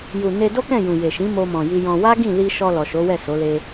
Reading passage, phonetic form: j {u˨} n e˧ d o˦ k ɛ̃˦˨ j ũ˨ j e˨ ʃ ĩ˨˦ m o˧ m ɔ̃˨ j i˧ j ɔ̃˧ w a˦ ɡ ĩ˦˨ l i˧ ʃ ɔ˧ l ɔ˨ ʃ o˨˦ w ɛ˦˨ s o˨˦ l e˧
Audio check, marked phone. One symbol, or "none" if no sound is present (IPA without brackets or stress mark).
u˨